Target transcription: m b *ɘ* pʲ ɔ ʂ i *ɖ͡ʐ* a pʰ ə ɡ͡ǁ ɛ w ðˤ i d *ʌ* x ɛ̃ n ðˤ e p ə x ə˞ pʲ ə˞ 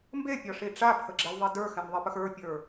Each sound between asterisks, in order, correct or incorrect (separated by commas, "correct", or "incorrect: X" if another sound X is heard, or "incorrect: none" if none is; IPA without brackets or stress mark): incorrect: e, incorrect: ʈ͡ʂ, incorrect: ə˞